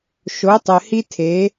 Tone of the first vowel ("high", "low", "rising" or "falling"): rising